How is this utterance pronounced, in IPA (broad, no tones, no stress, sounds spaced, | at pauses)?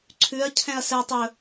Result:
ǀʰ ʉ ɐ̯ cʰ ɛ̃ ɐ̯ s ɛ tˤ ɵ